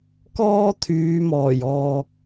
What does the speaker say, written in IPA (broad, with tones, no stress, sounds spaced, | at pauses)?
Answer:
k ɔː˥ t̪ʰ yː˨˧ m ɔː˨˩ j ɔː˨ k̚